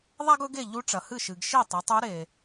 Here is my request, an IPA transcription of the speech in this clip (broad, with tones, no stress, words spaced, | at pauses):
ðˤa˥ɡɵ˧˥ɡ e˥˩ ʎu˧˥ʈ͡ʂɐ˩hɨ˥˩ʃɨ˩ɡ ʃi˥˩tˤɨ˩˧tˤu˧˥ ɾe˩